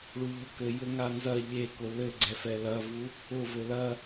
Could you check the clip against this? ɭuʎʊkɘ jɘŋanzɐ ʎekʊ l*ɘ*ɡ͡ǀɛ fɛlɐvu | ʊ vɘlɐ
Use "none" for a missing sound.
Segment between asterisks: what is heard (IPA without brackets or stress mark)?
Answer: ɘ